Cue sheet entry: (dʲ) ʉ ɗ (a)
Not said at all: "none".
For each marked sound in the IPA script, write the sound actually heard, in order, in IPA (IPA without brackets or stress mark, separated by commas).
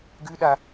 ɡ, a